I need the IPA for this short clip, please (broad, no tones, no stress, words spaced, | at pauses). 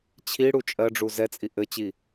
t͡ɕʰiɽu t͡ʃʼɜɖ͡ʐu zɛt͡sʼi ʔɘt͡ɕi